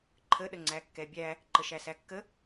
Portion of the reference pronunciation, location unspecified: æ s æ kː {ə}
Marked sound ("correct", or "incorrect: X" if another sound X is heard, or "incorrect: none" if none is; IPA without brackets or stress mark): correct